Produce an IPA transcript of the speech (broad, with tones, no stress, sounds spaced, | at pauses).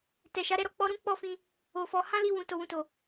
t ɛ˨ ʃ a˨˦ ɾ ɛ˧ ɾ ɔ˨ k͡p ɔ˧ ɾ ũ˦ k͡p ɔ˦˨ f ĩ˧ | o˨ f ɔ˨˦ h ã˦ l i˧ w ũ˨ t o˨ w ũ˨ t o˨